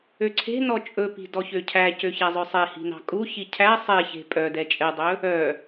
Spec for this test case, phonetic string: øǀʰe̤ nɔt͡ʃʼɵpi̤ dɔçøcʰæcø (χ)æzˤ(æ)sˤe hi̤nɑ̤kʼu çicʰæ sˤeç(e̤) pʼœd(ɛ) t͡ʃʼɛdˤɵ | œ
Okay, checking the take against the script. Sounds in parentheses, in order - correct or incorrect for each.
incorrect, incorrect, correct, correct

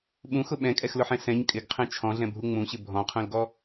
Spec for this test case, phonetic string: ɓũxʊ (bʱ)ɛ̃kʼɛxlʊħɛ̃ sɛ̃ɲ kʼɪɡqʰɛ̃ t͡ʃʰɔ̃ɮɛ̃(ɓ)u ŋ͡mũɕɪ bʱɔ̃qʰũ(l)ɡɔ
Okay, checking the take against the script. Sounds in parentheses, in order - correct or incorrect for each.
incorrect, incorrect, correct

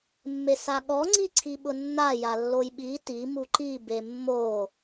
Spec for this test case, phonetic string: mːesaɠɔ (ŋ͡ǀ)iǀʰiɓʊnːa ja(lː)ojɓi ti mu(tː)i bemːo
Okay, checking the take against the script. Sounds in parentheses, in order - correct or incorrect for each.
correct, correct, incorrect

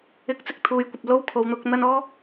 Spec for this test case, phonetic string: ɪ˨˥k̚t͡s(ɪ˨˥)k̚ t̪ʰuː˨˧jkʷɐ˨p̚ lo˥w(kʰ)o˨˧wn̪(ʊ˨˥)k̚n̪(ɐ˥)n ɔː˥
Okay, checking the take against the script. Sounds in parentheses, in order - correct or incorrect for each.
correct, correct, correct, correct

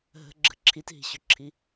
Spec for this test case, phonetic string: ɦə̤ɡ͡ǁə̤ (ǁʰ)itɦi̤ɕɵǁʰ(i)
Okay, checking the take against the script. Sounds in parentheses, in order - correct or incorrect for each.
correct, correct

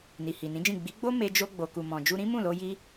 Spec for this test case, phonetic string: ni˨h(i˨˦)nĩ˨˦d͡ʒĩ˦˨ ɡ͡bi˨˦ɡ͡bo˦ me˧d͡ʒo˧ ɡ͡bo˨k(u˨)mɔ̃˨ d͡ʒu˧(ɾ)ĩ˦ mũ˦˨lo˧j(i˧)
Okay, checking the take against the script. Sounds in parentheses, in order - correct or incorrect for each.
incorrect, correct, correct, correct

